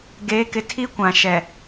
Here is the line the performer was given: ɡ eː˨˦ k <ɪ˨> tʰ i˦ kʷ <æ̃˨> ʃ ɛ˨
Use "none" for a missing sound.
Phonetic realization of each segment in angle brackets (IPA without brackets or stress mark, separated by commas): ɪ˨, ã˨